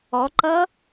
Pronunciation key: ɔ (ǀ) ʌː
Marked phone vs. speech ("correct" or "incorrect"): incorrect